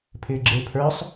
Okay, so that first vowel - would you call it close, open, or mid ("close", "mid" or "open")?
close